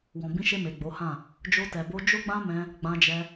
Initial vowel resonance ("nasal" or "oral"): nasal